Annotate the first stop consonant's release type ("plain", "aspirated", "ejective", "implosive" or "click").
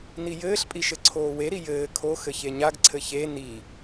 ejective